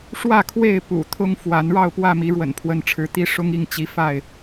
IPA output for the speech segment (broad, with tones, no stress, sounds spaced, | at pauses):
ʂ w ä˥˨ kʰ w e˥˨ ɪ̯ p ṵ˨˩ t̪ʰ ʊ˦ ŋ f w a˨˦ n ɻ ɑ˥˨ ʊ̯ p w ä˥˨ m i˨˦ ɻ w ə̰˨˩ n pʰ w ə˨˦ n ʈ͡ʂʰ ɻ̩˨˦ t̪ i˦ ʂ ʊ˦ ŋ i˥˨ ŋ t͡ɕ i˨˦ f a˥˨ ɪ̯